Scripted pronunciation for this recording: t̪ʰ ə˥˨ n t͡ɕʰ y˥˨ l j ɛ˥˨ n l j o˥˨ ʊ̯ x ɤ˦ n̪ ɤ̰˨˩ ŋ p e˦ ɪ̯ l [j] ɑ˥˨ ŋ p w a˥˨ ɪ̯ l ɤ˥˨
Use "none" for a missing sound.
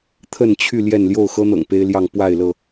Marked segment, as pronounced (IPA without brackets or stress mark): j